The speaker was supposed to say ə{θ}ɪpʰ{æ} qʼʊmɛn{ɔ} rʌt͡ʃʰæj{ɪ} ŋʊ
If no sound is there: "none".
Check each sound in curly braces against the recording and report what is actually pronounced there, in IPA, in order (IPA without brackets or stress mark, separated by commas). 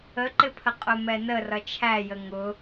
ǃ, ə, ə, ə